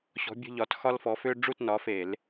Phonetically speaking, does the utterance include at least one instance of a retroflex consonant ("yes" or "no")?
yes